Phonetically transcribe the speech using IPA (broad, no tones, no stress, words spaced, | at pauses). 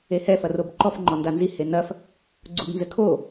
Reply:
ehɛ fɐrobǃɔf ŋ͡ǃɔndanzi henɐf | ɡ͡ǀubnzɘkʰo